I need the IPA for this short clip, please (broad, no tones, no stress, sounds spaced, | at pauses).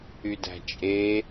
y d æ̤ t͡ʃʼ e